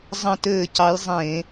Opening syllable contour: falling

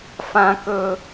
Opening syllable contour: high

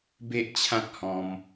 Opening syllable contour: high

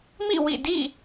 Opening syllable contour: falling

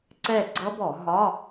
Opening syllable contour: falling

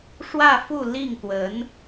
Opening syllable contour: falling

